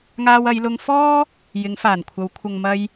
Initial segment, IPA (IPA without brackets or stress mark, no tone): ŋ